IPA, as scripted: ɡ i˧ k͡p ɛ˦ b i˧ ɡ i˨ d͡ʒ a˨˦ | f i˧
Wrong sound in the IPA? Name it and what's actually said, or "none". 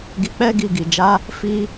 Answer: b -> ɡ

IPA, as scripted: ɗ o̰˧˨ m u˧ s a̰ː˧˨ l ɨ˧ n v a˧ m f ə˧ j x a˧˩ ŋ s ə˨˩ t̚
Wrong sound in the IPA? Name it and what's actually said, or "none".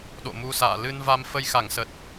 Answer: none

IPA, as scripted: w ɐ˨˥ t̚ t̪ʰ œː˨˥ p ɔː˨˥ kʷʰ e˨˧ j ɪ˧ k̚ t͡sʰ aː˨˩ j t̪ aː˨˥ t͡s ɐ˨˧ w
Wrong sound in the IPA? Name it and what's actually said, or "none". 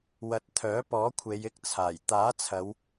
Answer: t͡s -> t͡sʰ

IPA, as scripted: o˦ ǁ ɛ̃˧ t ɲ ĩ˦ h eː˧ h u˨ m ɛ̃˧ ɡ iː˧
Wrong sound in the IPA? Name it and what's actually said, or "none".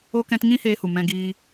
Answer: ǁ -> k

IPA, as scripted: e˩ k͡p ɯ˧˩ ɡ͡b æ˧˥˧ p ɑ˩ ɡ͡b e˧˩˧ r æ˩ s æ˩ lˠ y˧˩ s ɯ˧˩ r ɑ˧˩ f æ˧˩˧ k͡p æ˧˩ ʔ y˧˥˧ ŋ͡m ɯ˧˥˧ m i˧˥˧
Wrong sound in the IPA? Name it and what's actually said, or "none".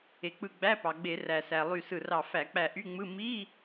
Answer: none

